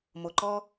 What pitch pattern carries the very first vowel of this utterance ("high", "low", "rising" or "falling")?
low